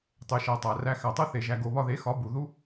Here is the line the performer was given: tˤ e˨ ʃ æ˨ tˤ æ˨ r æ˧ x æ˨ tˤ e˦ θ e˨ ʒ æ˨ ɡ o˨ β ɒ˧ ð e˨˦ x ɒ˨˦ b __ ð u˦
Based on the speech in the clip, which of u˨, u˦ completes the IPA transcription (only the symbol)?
u˨